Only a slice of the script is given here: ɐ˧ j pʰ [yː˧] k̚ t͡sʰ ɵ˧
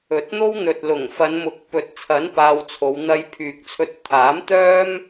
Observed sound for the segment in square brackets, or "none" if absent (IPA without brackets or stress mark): yː˨